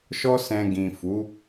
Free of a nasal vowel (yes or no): no